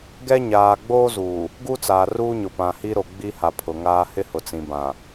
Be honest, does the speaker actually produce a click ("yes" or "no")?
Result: no